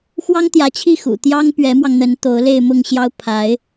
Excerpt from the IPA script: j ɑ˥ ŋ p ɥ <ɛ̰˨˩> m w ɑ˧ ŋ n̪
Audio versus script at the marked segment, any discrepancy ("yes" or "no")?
yes